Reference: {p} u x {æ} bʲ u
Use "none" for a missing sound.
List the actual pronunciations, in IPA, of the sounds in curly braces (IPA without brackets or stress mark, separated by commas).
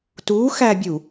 t, æ